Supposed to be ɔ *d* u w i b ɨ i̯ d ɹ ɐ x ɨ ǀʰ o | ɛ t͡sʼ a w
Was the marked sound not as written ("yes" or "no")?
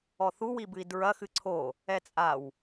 yes